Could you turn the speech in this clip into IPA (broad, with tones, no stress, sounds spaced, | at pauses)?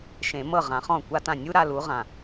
ʃ ẽ˨˩˦ m ɤ˥˩ ʁ ã˨˩˦ χ ɔ̃˥˩ kʷ a˥˧ t ã˥˩ nʲ u˥ ɾ a˥˧ l u˨˥ ʁ ã˨